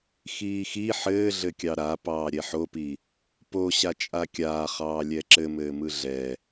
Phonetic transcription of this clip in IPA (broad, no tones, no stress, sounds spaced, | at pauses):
x iː x i ħ ɘː ɮ ɘ kʲ ɑ ɾ a p ɑː ɾʲ ɛ ħ o p i | p o ɕ a t͡ʃʼ a kʲ aː χ ɑː lʲ ɛ ǁ ɘ m ɘː m ɯ ɮ ɛ